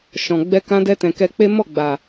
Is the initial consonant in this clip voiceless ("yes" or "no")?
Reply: yes